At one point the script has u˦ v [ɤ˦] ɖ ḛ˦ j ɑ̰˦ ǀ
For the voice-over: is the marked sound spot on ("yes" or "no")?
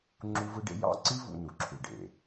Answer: no